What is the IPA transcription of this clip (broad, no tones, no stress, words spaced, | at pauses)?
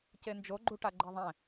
cend͡ʒo ɡ͡ǃuʈaɡ͡ǃeðˤɛ̃